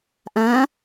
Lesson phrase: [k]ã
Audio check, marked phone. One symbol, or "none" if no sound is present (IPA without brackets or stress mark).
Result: ʔ